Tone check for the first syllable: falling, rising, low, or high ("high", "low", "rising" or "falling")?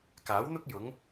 rising